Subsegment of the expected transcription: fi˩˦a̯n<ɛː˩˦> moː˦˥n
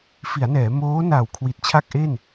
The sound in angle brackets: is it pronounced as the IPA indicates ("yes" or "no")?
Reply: yes